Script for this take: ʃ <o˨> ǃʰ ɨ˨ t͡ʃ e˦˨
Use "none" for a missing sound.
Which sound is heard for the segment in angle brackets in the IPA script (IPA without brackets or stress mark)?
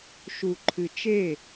u˨